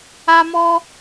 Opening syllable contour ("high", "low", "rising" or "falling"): high